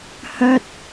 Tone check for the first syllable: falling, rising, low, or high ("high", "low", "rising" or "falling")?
high